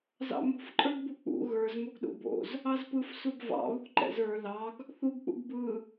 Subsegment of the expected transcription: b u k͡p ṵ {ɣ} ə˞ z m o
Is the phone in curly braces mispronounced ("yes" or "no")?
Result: no